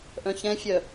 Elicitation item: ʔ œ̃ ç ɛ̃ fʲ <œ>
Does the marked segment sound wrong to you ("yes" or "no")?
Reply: no